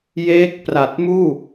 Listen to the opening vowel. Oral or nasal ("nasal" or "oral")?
oral